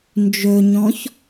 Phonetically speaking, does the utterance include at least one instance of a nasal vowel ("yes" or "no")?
yes